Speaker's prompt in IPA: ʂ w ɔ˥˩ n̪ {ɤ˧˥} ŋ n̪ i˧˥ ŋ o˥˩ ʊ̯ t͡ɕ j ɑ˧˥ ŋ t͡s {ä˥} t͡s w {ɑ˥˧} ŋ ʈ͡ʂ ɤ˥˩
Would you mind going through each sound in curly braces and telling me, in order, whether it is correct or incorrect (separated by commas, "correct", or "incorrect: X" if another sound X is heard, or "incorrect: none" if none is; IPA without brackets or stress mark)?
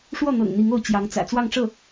incorrect: ɤ̰˨˩, incorrect: ä̰˨˩, correct